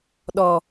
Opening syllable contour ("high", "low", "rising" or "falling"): low